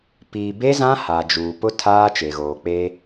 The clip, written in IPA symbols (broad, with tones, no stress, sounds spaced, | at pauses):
p iː˨ b e˦ z ã˦ h aː˨ d͡ʒ uː˨ p ʊ˦ tʰ aː˦ t͡ʃ e˨ ɣ oː˨ k͡p eː˦